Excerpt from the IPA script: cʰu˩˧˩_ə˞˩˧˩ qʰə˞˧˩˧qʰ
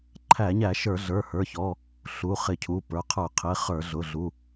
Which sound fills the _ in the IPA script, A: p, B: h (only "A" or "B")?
A